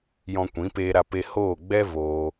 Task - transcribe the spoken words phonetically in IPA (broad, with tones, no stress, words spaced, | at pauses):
jɔ̃˧kʷĩ˨˦ peː˦ɾa˦pe˦ hoː˦˨ɡ͡bɛ˦ voː˦